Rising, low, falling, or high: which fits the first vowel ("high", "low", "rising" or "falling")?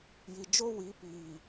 low